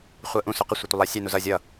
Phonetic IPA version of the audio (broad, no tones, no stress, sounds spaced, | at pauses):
χʷ ɜ ʔ ũ s ʊ q ɪ sʷ ɪ tʷ ɪ lˠ æ sʲ ɛ n u z ʌ zʲ ʌ